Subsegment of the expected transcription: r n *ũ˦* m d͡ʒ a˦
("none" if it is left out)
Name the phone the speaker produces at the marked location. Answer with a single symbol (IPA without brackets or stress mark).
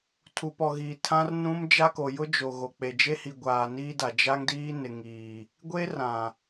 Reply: ũ˦